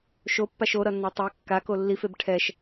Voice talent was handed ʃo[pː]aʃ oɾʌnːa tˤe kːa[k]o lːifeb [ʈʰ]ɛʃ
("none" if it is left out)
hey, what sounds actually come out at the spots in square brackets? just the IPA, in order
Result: pː, k, ʈʰ

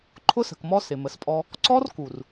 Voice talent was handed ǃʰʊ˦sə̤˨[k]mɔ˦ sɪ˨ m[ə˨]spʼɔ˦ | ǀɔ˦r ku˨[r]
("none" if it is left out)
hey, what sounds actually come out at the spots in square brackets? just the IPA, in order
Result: k, ə˨, r

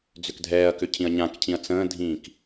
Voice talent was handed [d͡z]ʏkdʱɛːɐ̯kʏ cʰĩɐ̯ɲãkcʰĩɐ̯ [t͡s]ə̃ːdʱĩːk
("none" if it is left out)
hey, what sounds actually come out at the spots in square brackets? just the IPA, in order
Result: d͡z, t͡s

